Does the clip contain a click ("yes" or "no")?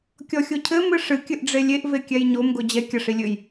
no